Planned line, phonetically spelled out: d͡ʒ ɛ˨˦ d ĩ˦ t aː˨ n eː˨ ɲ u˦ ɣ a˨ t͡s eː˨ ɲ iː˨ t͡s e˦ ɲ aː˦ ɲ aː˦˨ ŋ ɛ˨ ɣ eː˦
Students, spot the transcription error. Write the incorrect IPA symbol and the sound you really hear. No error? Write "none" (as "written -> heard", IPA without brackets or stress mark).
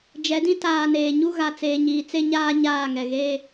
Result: none